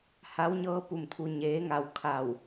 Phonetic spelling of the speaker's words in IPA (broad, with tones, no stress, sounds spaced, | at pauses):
h a˧˥ w ɲ ɤː˧˥ p u˧˩ m t̪ʰ u˧ ɲ eː˧˥ ŋ a˧ w kʰ a˧˩ w